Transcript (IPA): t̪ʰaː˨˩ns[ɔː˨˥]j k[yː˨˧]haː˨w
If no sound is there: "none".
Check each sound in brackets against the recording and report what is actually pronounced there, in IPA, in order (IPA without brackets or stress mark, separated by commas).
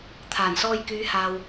ɔː˧, yː˨˧